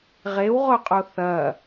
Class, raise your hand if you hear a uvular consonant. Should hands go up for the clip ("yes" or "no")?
yes